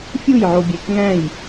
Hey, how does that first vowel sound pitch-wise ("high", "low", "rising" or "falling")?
falling